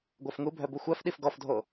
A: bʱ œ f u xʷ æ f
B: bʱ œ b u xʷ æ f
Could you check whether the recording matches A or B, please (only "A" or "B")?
B